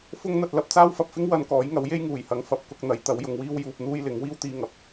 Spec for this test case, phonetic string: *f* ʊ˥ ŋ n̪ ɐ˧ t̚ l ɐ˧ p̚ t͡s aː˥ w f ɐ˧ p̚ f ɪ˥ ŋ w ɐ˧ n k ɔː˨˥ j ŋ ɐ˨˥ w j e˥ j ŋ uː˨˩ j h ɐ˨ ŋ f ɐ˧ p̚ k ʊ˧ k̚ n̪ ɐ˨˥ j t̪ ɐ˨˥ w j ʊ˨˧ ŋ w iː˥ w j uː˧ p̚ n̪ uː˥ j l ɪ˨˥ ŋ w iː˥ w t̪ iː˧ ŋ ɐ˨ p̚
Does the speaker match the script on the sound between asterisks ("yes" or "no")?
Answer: yes